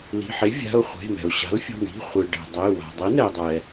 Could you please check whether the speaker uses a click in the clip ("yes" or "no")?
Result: no